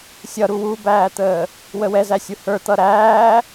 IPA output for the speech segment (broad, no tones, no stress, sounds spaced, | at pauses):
sʲ ʌ ɾ u w u b æː t̪ əː | w ə w ɛ z æ sʲ u h ə˞ t̪ ʌ ɾ æː